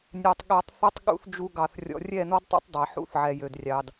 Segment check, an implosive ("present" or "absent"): present